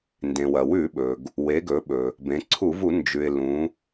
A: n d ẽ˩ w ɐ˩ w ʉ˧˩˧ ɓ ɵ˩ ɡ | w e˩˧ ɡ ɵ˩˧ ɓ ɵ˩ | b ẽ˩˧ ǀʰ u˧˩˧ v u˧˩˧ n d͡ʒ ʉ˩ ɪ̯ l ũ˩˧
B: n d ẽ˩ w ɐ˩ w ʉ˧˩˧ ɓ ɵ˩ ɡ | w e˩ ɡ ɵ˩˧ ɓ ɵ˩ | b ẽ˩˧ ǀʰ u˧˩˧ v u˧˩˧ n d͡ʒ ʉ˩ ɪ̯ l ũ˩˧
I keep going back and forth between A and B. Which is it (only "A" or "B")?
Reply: A